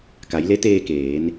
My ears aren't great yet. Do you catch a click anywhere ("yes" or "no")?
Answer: no